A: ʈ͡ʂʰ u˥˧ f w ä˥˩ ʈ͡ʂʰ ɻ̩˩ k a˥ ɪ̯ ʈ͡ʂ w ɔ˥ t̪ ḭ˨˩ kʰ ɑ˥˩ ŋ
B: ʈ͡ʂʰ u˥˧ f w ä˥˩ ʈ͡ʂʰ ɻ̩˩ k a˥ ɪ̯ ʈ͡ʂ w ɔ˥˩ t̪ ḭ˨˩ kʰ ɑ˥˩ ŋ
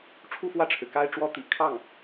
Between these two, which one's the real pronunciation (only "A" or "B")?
A